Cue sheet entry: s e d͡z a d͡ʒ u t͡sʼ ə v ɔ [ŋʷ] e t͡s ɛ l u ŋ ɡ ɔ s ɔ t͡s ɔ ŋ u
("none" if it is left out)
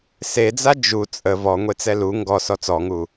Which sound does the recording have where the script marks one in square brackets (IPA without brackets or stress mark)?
ŋʷ